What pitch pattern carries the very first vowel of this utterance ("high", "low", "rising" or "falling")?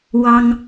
high